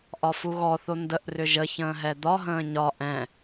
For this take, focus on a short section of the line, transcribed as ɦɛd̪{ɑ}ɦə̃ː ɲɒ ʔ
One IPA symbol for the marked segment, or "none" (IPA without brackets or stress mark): ɒ